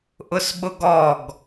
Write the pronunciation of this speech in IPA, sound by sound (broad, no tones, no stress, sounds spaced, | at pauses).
ʔ ʊ s ɓ ʊ ɡ ɔ ɡ